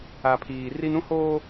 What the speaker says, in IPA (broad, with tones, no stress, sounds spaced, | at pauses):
a˨ pʰ iː˨ r i˦ n ũ˦ h oː˦